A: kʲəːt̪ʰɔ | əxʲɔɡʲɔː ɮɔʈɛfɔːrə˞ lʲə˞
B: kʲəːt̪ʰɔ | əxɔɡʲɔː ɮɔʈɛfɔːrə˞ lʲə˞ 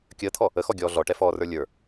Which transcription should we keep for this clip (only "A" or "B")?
B